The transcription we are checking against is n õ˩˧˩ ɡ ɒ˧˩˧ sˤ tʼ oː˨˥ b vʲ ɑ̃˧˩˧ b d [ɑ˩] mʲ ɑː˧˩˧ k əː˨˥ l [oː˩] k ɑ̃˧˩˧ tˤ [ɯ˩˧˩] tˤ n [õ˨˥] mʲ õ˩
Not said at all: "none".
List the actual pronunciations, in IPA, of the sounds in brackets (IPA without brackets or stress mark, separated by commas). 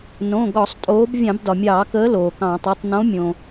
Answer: ɒ˩, oː˩, ɯ˩˧˩, õ˨˥